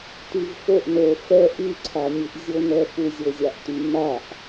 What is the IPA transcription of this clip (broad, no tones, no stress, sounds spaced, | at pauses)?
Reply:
t y v f o ʔ n o f ɛ ʔ y ǀʰ a nʲ ɨ ʔ zʲ o n ɛ f u zʲ o zʲ a ʔ t y m a ʔ